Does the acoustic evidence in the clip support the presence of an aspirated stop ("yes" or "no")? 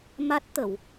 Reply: no